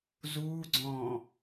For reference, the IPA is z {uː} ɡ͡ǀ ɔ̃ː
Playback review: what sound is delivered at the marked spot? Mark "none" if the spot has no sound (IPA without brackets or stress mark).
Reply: uː